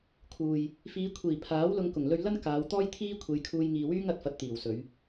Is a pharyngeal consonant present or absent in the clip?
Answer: absent